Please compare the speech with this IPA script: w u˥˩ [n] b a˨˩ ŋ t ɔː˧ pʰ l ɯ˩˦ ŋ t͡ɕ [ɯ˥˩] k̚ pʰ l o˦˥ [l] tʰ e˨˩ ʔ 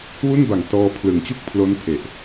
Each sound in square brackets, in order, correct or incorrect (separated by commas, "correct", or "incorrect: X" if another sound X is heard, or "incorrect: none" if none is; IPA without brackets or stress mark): correct, incorrect: u˥˩, incorrect: n